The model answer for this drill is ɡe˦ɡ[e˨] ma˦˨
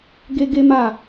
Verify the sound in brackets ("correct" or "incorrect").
incorrect